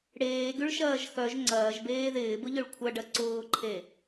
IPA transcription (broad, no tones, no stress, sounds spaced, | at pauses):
ɽ eː ɡ y ɭ ʃ ɐː ʒ x œ ʒ ŋ͡ǀ ɐː ʒ b eː ð ɪː b ʊ ʎ ʊ ɭ kʷʰ ɐ ɖ ɐ ǀ ʊː ǃʰ e